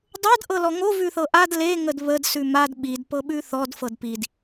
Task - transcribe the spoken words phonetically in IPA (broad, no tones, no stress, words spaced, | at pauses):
dˤɤd ʔɤlɔŋo vʉθɤʔad le ŋədβəd sʉmad ɓid pɤɓʉθɔd fɤdpid